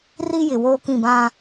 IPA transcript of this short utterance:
r i˦ j ɪ˨ w oː˦ k ĩ˦˨ b ã˦

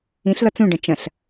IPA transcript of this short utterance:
ĩ ɬ l ɒ t͡s ũ ɖ ɐ̃ t͡ʃ ɐ̃ ɬ

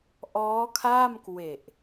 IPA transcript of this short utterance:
ʔ ɔː˦˥ kʰ a˥˩ m k w e˨˩ ʔ

